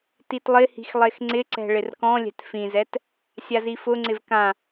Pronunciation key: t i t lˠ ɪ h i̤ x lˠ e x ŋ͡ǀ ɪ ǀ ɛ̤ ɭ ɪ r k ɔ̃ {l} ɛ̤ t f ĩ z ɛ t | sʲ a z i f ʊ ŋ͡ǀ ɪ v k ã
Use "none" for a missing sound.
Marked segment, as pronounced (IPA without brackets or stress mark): lʲ